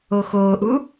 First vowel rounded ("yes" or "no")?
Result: yes